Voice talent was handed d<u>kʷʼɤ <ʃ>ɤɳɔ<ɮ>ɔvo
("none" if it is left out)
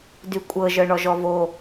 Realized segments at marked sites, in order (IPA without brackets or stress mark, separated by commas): y, ʒ, ʒ